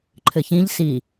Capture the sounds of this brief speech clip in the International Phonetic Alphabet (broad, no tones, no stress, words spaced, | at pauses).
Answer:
ǃʰɘçĩʎ si